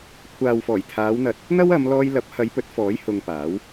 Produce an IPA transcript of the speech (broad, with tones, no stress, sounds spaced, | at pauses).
kʷʰ aː˨ w f ɔː˨˩ j t̪ʰ aː˨˧ w n̪ ɐ˨ t̚ | n̪ ɐ˥ w ɐ˨˧ m l ɔː˧ j l ɐ˨˥ p̚ h ɐ˨˧ j p ɵ˨˥ t̚ f ɔː˨˥ j h ʊ˧ ŋ p aː˨˥ w